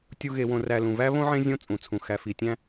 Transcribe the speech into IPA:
tʲu˨ɣe˩wõ˩ ræ˨lũ˩væ˦ βõ˥ʕẽ˦zʲõ˦ t͡sʼũ˩t͡sʰũ˩ xæ˨fi˨tʲæ̃˦

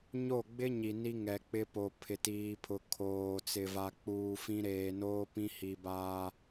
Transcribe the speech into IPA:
ɲo˦˨ɡ͡bɪ˦ ɲi˨ni˦ ŋɛ˨k͡pɪ˦po˨ pʰɪ˨tiː˨pʰʊ˨ kʰoː˨ t͡sɪ˨va˨ k͡puː˨fĩ˦ ɾeː˨noː˦pĩ˦ hi˨baː˦

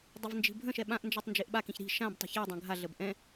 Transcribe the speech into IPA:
dˤəvnd͡ʒi̤bʱə̃ʃɛ ɓãʔnd͡ʒɛtˤ nd͡ʒeʔɓakĩç ɾi̤ ʃãbtˤə̤ çe dˤœ̃ɡʱaɮəb ʔɛ̃

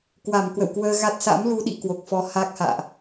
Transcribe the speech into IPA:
kwa˧˩mkwə̰˧˨wkwəː˧ɣa˦˥t̚ sa̰˧˥mlu˧ɗḭ˧˨ kwo˨˩k̚fɔ˧ ha˦˥k̚ha̰ː˧˨ʔ

